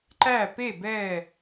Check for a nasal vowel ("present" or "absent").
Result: absent